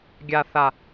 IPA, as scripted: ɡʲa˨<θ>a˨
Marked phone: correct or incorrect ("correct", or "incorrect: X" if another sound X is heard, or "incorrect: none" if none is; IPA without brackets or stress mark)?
correct